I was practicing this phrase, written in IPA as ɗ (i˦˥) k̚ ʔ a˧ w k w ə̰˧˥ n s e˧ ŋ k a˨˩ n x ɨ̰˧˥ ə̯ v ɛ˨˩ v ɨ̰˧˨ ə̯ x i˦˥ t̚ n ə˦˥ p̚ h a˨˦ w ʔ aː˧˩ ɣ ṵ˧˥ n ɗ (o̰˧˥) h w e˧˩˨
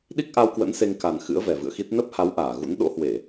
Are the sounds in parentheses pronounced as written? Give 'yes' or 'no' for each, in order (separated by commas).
yes, yes